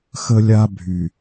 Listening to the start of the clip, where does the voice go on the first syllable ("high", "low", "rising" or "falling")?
high